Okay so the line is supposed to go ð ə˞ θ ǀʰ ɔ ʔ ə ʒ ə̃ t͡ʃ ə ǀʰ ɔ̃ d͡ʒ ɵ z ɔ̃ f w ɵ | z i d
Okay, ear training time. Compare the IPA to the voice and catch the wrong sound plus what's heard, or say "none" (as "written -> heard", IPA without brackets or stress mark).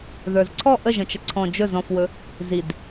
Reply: θ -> z